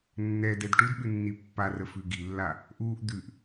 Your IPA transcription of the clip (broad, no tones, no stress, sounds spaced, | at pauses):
nː ɛ d ɛ d ʈ u d ɓ ʉ nː i pː a r ə f ʉ ɡ i lː a | ʔ uː ʔ d̪ ʉ ʔ